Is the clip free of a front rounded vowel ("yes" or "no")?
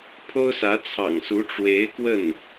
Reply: yes